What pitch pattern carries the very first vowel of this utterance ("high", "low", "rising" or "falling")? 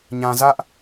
low